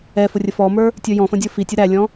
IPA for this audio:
ɛfʊ rʲəfɔmə˞ | tʲə˞jɔ̃fə̃ dʲə˞fitʲʊ ɾælʲɔ̃

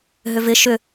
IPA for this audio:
ɦʏvɪ ʃʏ

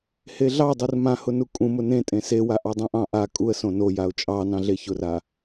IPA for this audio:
heɮɑdˤur mãhʊ nukʼũmʊ nẽ tʼẽsewa ʔɑdˤũʔɑ̃ ʔa kʼuə̯ sõnojaʊ̯ t͡ʃʼɑnɑ̃ɮe çʊra

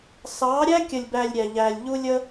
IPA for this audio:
sɑ˨˦ɾʲæ˦kʲə˨lʲbæ˨lʲ ɾʲæ˨ʎæ˨lʲ ʎu˦lʲə˦

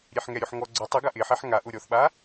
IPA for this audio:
ɾʲeħŋɛɾʲoħ ŋɔ ɡ͡ǀʊ tˤɪɡa ʔɪħɛħ ŋaʔʊ ɾʲɔθɓa

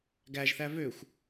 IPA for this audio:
ɡæʒθæ vøxʷ

